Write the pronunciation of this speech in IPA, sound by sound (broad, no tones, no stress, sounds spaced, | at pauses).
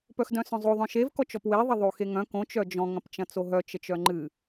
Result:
p œ x d œ̃ s œ̃ zˤ o ðˤ œ̃ ʃ e v k ɔ t͡ʃ ɔ p w e ðˤ ɐ ðˤ o x e ŋ œ̃ k õ t͡ʃ œ d͡ʒ ɔ̃ ŋ ɐ̃ p t͡ʃ ɐ̃ t͡s o ɦ œ t͡ʃ ə t͡ʃ œ ŋ͡ǃ ɨ